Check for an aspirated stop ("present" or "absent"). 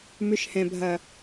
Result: absent